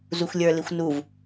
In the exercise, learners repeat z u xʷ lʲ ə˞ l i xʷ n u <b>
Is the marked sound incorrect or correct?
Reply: incorrect